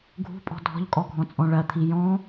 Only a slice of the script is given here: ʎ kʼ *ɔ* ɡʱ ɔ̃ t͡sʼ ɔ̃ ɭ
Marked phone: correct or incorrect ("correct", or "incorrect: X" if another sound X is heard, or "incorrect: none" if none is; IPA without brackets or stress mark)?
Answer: correct